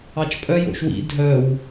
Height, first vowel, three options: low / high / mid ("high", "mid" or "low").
low